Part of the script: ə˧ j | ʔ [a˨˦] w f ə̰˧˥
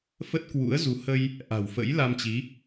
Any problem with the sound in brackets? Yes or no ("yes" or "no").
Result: yes